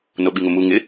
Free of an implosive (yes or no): no